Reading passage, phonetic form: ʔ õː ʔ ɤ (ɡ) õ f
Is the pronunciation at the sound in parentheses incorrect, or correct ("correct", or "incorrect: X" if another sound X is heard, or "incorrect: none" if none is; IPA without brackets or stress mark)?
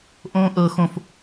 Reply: incorrect: x